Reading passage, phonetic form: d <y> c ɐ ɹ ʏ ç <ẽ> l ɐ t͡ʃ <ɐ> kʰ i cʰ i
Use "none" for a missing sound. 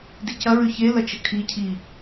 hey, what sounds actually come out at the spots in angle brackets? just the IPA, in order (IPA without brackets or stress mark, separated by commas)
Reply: i, e, ə